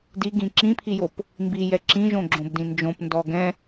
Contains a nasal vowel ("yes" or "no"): yes